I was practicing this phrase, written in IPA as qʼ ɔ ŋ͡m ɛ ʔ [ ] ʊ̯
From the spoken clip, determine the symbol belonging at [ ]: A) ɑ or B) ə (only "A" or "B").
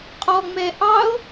A